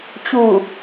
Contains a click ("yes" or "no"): no